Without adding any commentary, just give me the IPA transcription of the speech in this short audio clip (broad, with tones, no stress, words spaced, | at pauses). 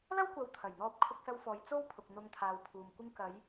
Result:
lɐ˥wkʷɐ˨˧w t̪ʰɐ˨˩jn̪ɔː˧p̚ kʰʊ˧k̚sɐ˧wfɔː˨j t͡so˥wpʰʊ˨k̚ n̪ʊ˧ŋ t̪ʰaː˨wpʰuː˨m kʷɪ˧ŋkɐ˨˧j